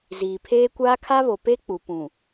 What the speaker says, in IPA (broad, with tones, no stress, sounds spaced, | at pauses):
z iː˨ pʰ eː˦ kʷ aː˦ kʰ a˦ β o˨ p e˦ k͡p u˨ p ũ˨